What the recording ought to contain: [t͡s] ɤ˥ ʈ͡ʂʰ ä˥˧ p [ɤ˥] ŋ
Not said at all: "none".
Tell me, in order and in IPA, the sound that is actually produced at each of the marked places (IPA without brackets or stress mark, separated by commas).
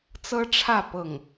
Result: t͡s, ɤ˥˩